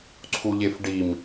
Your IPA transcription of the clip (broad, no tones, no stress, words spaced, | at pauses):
ǀʰuʎefɖim